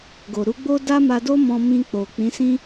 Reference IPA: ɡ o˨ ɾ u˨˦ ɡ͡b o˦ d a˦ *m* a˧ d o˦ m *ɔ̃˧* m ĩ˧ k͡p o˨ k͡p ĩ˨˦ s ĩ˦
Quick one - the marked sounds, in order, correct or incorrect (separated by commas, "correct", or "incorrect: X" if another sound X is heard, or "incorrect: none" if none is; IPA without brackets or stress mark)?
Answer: correct, correct